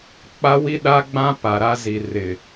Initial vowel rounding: unrounded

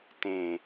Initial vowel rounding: unrounded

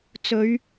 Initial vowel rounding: rounded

